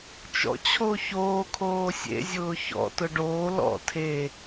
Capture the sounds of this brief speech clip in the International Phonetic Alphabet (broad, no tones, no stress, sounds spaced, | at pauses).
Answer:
t͡ʃ ɔ̰ t͡ɕʰ o ç oː kʰ oː sʲ ḛ zʲ ʊː ç ɔ̰ t ʊ ɖ oː l ɔ̰ tʰ e